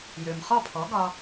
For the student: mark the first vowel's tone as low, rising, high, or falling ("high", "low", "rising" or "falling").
low